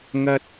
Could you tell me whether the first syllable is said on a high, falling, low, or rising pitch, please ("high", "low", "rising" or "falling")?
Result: low